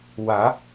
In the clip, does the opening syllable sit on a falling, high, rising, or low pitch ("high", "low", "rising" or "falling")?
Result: rising